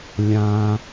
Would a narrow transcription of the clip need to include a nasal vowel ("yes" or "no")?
yes